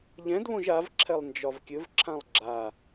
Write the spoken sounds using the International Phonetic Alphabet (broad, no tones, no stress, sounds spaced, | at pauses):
ʎ ɛ̃ d β õ ʒ a v ǁʰ ɛ lˠ n d͡ʒ ɒ v kʲ ɵ v ǁʰ ã lˠ ɡ͡ǁ a